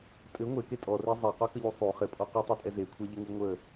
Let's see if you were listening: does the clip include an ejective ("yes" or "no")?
yes